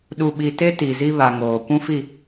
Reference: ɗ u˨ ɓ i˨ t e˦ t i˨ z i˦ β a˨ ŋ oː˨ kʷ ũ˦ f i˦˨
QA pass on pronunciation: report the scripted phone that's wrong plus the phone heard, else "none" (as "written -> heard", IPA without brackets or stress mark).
none